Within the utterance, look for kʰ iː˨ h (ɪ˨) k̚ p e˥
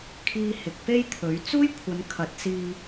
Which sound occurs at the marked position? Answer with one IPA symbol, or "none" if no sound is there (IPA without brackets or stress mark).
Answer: ɪ˨